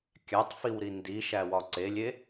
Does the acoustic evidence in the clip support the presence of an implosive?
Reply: no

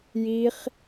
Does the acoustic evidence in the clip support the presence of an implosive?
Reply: no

